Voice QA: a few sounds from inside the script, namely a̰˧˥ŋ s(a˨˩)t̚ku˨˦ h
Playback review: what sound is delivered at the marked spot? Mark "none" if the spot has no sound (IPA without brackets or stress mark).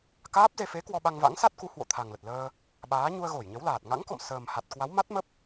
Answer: a˦˥